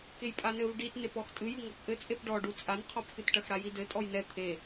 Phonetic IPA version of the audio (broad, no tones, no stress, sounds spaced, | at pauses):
k e j pʼ a n ɘ v ɖ i t n e p ɔ x tʼ ɨ j ɨ ŋ ɔ p ʔ ɘ t͡sʼ e p ɖ ɔ ɖ u t͡sʼ a n qʰ ɔ p x ɨ t ʈ ɐ x ɽ a j i d ɘ tʼ ɔ j n ɛ t̪ʰ e